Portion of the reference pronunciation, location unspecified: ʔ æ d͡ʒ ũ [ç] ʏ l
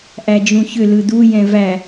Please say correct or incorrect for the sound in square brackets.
correct